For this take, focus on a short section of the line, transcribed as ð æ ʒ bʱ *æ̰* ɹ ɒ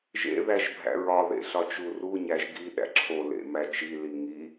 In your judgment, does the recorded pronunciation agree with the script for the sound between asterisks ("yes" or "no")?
yes